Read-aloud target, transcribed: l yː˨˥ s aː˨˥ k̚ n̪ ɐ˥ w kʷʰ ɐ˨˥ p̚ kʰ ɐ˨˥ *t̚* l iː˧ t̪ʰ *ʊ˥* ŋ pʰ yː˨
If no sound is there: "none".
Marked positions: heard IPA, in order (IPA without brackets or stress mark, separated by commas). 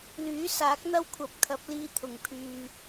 p̚, ʊ˨˩